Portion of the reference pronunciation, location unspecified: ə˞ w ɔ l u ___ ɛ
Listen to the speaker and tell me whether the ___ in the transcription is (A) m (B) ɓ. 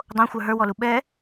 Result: B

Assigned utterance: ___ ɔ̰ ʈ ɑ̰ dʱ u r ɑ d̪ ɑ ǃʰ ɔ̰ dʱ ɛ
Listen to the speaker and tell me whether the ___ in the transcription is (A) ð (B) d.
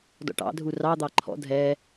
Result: B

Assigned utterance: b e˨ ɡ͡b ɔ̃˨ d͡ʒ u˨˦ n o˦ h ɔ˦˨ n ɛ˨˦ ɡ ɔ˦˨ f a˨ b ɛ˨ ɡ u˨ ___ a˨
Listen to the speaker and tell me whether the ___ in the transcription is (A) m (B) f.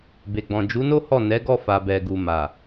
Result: A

